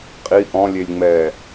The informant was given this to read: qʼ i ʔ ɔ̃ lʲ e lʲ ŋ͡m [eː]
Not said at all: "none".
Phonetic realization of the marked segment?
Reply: ɛː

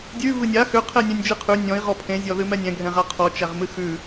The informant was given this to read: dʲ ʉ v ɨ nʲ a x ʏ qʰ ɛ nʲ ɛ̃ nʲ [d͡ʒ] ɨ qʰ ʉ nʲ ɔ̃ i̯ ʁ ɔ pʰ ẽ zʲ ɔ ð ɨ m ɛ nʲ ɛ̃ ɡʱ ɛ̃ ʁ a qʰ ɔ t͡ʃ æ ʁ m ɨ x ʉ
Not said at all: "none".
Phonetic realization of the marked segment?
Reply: d͡ʒ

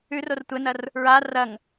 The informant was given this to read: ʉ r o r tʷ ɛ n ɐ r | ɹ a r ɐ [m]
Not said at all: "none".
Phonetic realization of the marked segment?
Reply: ŋ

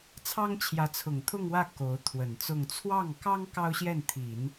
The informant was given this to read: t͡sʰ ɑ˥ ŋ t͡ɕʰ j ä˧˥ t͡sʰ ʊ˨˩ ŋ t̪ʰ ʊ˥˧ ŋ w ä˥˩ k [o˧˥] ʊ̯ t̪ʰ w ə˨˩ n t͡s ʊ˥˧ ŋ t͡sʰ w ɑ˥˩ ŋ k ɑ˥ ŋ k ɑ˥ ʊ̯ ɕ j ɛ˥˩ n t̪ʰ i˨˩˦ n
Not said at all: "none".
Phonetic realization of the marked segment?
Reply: o˧˥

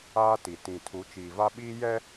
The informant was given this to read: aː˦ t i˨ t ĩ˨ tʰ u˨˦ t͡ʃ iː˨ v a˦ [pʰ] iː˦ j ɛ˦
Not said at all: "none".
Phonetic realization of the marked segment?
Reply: ɓ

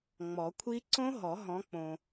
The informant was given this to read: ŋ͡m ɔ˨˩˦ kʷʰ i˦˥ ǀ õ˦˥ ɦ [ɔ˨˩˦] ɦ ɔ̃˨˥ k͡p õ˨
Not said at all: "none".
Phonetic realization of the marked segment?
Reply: ɔ˨˩˦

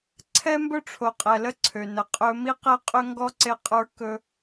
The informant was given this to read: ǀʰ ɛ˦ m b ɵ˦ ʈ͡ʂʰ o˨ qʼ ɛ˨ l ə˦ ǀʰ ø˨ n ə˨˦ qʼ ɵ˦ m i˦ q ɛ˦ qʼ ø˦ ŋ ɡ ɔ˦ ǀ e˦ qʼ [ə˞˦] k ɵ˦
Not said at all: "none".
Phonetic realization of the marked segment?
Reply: ə˞˦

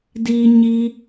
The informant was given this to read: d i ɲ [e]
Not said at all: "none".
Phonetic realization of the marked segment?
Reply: i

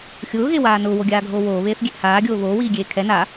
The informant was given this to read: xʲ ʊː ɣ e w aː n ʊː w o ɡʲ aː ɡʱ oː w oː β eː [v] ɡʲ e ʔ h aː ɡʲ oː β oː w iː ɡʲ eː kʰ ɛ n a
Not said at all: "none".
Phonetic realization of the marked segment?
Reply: θ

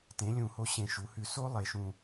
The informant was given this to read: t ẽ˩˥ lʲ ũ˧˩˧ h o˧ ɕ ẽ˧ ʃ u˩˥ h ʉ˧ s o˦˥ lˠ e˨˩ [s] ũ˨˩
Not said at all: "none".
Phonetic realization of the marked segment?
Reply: ʃ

